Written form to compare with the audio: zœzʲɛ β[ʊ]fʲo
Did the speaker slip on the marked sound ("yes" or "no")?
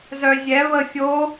yes